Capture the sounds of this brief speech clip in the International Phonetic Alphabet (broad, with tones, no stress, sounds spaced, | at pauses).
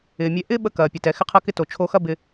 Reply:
ɪː˩ mʲ ɛ˧ ʔ ɪː˥ ɓ ə˧ k ɐː˩ pʲ ə˩ t ɛ˩ x ɪ˧ qʰ ɐ˧ k ɪ˧ t o˩ t͡ʃʰ o˧ x ɐ˥ b ɪ˧